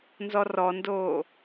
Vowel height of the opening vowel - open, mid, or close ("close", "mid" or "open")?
mid